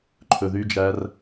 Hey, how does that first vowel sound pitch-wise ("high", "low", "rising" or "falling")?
low